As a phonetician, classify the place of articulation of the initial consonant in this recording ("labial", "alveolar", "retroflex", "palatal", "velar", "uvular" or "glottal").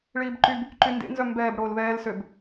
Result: retroflex